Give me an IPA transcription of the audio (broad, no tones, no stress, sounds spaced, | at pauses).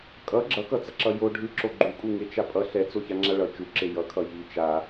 kʼ ʌ ɡ͡ǁ ʌ k ʌ t͡s ʌ ǁ ʌ j o ɖʱ ɯ ǁ o ɡ͡ǃ u kʼ u ŋ e t͡ʃ a pʼ ʌ ɬ ɛ t͡s o ç a ŋ͡ǁ a ɭ ʌ t͡ʃ u ǁ e j ʌ kʰ ʌ j i t͡ʃ a